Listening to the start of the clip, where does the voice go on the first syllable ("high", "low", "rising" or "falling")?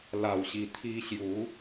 low